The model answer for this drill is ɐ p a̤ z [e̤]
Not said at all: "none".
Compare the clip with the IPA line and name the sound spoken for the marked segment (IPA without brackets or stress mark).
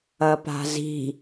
i̤